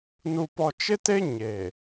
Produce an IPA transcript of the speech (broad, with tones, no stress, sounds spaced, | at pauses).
n u˨ p ɔ˨ t͡ʃ ɪ˦ t e˦ ɲ e˨